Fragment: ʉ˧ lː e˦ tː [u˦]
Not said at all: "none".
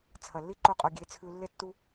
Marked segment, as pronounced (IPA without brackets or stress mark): u˦